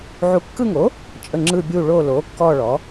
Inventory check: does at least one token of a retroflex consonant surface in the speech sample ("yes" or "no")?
yes